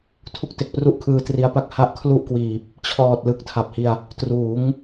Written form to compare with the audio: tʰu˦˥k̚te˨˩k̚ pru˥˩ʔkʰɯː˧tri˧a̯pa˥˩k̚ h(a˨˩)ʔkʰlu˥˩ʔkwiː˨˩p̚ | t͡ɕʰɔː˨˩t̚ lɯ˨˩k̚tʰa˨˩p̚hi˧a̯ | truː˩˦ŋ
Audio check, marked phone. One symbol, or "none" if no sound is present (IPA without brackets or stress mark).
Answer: a˦˥